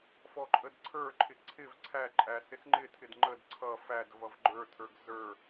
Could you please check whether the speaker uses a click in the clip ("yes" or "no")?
yes